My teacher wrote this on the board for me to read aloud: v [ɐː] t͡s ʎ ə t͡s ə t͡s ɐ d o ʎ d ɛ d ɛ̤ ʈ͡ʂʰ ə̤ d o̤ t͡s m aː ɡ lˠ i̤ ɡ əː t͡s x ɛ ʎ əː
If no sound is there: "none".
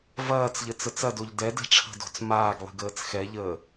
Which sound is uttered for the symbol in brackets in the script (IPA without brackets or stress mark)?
ɐː